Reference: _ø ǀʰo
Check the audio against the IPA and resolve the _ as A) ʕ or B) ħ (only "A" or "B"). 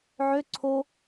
A